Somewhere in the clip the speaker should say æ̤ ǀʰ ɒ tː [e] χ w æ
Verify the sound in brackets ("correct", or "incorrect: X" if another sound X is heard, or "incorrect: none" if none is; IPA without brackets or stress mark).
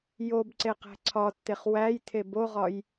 correct